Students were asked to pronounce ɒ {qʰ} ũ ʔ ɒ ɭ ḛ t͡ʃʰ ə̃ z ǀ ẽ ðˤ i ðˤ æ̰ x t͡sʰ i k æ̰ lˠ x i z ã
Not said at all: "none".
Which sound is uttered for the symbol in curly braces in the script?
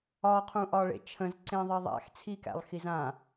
qʰ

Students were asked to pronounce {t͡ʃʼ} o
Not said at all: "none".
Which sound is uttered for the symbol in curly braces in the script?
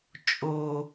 t͡ʃʼ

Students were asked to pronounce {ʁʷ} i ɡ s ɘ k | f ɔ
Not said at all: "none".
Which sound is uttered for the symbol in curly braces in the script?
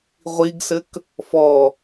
ʁʷ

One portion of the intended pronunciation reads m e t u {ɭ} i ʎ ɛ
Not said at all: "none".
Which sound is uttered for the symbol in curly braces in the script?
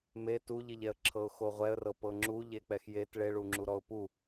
ʎ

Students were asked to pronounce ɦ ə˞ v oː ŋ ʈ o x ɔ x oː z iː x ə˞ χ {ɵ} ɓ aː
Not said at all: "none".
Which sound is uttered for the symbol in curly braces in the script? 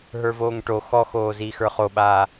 o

